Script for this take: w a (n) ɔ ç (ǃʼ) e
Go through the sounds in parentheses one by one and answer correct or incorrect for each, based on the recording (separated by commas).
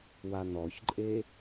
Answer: correct, correct